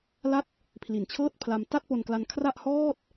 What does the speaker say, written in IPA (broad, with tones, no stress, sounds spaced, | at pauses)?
l a˥˩ t̚ | pʰ l i˨˩ n t͡ɕʰ ɤː˥˩ t̚ pʰ l a˧ m t a˥˩ t̚ p o˧ n k l a˧ n kʰ r a˥˩ ʔ h ɔː˥˩ t̚